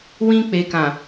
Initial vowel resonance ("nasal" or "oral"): nasal